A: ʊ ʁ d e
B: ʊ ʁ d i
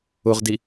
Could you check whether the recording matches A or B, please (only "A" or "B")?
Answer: B